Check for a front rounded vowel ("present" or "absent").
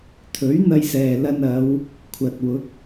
absent